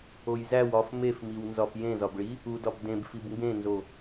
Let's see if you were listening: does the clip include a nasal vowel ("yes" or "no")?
yes